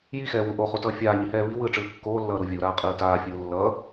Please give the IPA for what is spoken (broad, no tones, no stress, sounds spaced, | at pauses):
j i x ɛː w u ʔ o χ u t ʌː fʲ aː ɲ i h ɛː β i w ɯː ʈ͡ʂ ɯː kː oː lː ʌː ɾ u vʲ u ɾ aː qʼ ɯː t aː fʲ ɯː lː ʌː